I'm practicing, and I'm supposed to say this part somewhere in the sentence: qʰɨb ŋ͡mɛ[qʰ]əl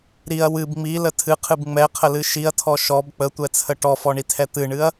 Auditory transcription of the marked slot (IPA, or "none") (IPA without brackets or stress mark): qʰ